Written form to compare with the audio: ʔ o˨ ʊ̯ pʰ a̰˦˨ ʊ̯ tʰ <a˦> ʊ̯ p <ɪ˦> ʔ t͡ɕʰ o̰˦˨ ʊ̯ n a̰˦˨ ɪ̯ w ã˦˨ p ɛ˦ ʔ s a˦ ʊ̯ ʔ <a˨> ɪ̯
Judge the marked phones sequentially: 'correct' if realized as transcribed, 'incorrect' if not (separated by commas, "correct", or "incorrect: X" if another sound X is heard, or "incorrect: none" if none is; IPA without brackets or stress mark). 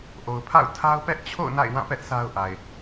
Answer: correct, incorrect: ɛ˦, correct